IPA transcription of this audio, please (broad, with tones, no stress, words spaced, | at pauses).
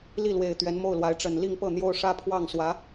li˥˩lwe˨˩ɪ̯ t̪ɥɛ˧˥nmo˥˩ʊ̯lwa˧˥ɪ̯ ʈ͡ʂə˨˩n li˥˧ŋpɤ˥˩ n̪jo˥ʊ̯ ʂä˥pʰwɑ˥˩ŋswä˧˥